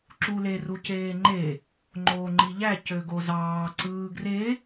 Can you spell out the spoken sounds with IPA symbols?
ǁ u l e r u c eː ŋ͡ǃ e | ŋ͡ǃ oː ŋ͡ǃ i ʎ æ c ø ɡ o z ɑː ǀ ɯː ɡ r e

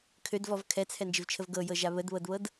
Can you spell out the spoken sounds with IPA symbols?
kʰ ø d v ɔ v kʰ ɛ t͡sʰ ɛ n d͡ʒ ɪ v t͡ʃʰ ə v ɡ ɤ j ɤ ʒ a β ə d β ɤ d β ɤ d

